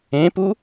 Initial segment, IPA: ẽ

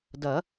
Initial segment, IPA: d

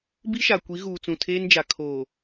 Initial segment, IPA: b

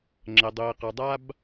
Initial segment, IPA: ŋ͡ǁ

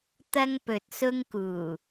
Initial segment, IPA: t̪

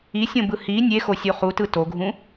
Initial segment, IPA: i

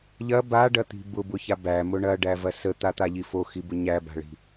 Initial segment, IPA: ʎ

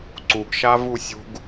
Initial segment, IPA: ǀ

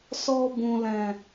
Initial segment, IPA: s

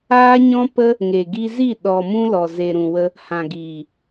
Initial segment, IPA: aː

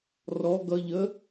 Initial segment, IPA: r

